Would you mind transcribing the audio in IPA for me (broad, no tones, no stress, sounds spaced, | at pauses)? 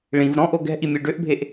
ɭ ĩ v ɾ ɔ̃ ʔ o ɡ ɛ̤ ʔ i mʲ ø ɖ ø ʔ bʱ e ʔ